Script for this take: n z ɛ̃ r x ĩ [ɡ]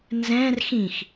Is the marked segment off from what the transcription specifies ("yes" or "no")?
yes